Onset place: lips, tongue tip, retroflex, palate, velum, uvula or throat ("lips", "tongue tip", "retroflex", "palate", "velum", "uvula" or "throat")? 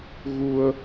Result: velum